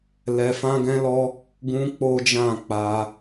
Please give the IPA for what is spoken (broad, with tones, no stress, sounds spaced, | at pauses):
l ɛ˧ f ã˦ ɡ ɛ̃˦ l ɔ˦ | ɡ ũ˦ k͡p o˦ d͡ʒ ã˦˨ k͡p a˧